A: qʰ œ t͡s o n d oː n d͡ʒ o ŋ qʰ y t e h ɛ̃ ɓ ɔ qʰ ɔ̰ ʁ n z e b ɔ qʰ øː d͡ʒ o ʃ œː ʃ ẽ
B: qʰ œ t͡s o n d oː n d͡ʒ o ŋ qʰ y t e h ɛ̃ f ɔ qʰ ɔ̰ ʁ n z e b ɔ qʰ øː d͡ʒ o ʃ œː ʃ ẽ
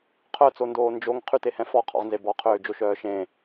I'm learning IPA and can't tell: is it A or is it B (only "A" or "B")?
B